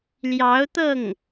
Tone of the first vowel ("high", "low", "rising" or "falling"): rising